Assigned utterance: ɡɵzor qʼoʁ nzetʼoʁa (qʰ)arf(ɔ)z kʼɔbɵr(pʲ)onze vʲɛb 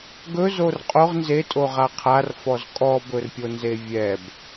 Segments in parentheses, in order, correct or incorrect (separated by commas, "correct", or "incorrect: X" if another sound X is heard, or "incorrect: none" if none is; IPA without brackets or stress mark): correct, correct, correct